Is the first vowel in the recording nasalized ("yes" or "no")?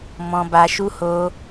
yes